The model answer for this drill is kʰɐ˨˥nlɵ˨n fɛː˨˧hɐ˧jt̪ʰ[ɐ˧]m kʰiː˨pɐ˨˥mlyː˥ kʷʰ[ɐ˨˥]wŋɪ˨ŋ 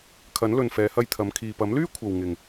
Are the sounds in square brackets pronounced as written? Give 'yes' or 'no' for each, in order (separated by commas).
no, no